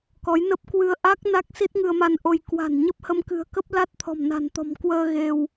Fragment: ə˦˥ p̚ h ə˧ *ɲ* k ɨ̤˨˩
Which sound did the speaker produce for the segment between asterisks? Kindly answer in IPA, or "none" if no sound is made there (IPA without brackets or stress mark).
m